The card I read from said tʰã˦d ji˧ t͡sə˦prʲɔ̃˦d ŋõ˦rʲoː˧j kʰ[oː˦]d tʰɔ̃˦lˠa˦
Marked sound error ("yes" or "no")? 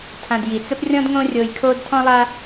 no